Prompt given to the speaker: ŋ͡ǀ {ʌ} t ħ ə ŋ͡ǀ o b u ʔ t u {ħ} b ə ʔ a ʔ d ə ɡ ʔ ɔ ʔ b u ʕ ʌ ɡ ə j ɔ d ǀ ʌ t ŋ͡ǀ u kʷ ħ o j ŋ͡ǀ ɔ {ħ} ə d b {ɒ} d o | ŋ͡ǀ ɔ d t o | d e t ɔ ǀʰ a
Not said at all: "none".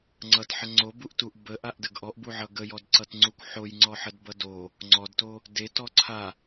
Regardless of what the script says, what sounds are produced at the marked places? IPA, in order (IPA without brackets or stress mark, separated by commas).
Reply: ʌ, ʔ, ħ, ʌ